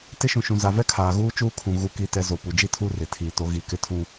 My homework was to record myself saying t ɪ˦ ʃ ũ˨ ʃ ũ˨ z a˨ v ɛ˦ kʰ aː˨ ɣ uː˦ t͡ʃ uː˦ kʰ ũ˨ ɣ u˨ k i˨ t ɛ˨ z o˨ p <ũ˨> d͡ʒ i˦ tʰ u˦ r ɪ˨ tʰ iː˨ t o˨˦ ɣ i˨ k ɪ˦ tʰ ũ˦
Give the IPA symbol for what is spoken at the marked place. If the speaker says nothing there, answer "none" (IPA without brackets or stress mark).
u˨